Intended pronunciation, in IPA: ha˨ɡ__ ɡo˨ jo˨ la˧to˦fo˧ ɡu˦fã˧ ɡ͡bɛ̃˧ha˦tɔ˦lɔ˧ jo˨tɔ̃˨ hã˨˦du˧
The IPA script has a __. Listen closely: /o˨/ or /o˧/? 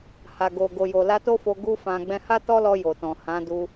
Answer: o˨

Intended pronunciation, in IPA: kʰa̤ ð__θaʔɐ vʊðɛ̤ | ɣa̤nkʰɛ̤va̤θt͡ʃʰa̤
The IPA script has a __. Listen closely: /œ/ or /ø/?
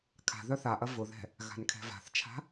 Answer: œ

